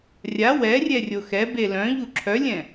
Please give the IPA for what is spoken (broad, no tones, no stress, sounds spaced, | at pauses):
rʲ a w ɛ rʲ ɛ rʲ o x ɛ b e l œ̃ ʎ u ǁʰ œ lʲ ɛ̃